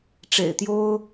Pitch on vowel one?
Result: low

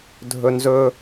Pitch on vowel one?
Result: high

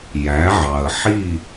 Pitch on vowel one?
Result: rising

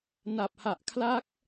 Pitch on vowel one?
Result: low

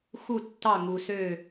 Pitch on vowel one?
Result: falling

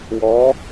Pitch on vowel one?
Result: rising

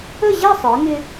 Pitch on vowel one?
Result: falling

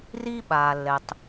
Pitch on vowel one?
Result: high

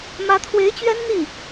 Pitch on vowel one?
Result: rising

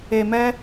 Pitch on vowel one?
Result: low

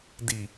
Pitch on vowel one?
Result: low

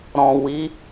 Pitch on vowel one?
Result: low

